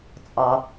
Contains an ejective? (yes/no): yes